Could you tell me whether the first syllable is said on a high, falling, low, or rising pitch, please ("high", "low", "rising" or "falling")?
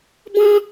high